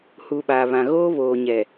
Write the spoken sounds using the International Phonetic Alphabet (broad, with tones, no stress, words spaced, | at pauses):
hu˨ ɓaː˨βã˨ ɣoː˦ βoː˨ ɲɛ˨